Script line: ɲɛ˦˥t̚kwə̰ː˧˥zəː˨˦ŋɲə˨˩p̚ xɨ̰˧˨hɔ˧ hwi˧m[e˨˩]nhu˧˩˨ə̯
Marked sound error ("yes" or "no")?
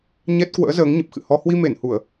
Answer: yes